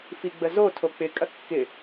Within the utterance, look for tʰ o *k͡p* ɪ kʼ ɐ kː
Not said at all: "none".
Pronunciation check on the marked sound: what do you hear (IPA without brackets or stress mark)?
k͡p